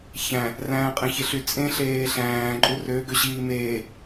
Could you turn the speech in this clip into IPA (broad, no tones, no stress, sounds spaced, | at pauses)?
ç æ̃ | r æ̃ː qʼ ẽ ç e ɬ y t͡sʼ ẽ ɬ eː ɬ æ̃ː ǃʼ u r ø ɡ ø ɕ iː m eː